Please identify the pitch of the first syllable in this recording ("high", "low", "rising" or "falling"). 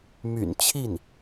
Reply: low